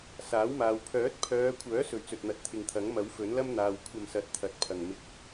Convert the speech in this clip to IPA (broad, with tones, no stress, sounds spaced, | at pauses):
s aː˨˥ w m aː˨ w pʰ œː˨˥ t̚ pʰ œː˨˧ kʷʰ œː˨˥ s ɵ˨˧ ɥ t͡s ɵ˨ t̚ n̪ ɐ˨˥ t̚ t̪ʰ ɪ˨ ŋ t̪ʰ ɐ˨˥ ŋ m ɐ˨˥ w f ɵ˨˥ n l ɐ˥ m n̪ aː˨ w kʷʰ ɐ˧ m s ɐ˨˥ t̚ t̪ʰ ɐ˨ t̚ pʰ ɐ˨˩ ŋ m ɪ˧ k̚